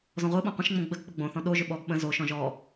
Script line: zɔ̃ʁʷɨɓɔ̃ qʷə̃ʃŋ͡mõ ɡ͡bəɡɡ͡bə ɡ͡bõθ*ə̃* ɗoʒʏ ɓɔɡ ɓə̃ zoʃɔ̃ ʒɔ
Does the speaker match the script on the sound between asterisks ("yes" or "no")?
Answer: no